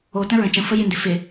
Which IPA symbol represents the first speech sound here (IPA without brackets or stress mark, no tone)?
o